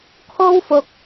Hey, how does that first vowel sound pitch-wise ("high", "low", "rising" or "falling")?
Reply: high